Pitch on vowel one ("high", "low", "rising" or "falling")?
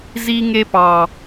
high